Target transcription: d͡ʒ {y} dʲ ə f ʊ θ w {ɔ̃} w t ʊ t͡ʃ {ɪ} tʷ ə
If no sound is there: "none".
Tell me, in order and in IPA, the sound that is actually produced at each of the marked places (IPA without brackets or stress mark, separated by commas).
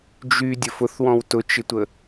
y, ɔ̃, ɪ